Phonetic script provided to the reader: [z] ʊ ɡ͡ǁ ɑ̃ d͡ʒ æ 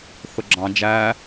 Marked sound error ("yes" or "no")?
yes